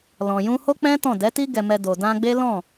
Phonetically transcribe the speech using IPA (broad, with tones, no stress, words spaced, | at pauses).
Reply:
lɔ̃˨jũ˧ho˦k͡pɛ̃˦ tɔ̃˦˨ dɛ˨˦ti˦ ɡɛ˧mɛ˧ do˨dã˧ɡ͡be˦ lɔ̃˦˨